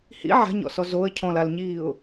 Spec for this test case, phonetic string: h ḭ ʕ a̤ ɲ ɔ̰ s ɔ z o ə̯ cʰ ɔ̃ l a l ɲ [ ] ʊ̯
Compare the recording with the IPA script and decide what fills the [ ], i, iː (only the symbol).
iː